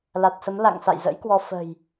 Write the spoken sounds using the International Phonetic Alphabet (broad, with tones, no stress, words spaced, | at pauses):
la˨˩t̚sə˨˦m la̰˧˨ŋ sa̰˧˨jzə̰˧˥jkwɔ˧ fə̤˨˩j